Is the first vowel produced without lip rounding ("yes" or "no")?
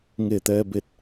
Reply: yes